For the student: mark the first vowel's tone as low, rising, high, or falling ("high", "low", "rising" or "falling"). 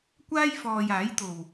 high